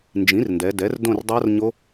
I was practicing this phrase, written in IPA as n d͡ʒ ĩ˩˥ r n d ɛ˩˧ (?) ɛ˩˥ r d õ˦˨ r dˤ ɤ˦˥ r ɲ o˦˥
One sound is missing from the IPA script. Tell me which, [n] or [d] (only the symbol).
d